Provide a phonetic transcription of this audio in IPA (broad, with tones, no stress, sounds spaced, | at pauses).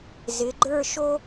z ɪ˩˧ ɡ͡ǃ ə˞˥˧ ʃ o˥